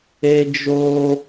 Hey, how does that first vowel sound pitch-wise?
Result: high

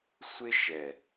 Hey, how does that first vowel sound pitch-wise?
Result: high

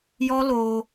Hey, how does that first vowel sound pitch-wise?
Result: high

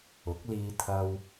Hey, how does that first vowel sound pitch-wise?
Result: rising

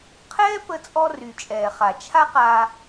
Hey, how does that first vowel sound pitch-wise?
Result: high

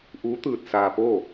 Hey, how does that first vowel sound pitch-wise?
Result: rising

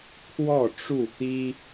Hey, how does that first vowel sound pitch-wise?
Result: falling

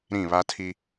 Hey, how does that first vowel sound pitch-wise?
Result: falling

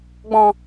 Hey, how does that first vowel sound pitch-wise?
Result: low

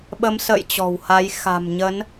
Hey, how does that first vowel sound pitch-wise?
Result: rising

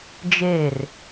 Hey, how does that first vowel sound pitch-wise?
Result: falling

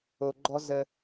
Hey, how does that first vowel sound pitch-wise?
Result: low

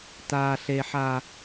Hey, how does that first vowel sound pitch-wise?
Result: low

